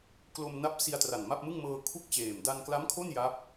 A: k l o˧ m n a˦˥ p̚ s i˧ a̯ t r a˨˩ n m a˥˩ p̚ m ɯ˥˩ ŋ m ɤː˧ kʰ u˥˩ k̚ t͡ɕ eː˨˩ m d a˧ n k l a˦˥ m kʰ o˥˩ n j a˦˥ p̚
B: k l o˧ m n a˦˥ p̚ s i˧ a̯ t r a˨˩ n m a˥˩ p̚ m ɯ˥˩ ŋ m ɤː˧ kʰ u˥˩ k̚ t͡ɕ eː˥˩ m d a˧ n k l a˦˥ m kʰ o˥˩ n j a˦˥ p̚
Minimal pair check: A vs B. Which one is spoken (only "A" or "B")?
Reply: A